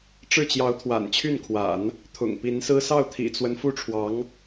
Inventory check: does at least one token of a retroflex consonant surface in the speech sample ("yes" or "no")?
yes